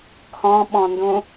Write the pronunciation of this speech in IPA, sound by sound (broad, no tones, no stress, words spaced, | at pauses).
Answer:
kʰɔ̃ɓɔ̃ndũ